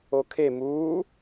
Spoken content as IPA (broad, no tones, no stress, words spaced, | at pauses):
okʰe muː